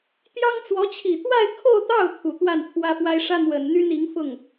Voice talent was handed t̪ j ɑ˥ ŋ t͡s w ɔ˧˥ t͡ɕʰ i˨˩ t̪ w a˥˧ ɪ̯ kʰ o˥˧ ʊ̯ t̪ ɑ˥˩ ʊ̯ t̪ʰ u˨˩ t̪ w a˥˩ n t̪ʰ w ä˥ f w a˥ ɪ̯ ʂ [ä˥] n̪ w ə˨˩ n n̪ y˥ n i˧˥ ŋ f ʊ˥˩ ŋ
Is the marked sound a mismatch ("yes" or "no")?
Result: no